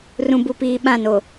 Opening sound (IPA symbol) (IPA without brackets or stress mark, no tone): r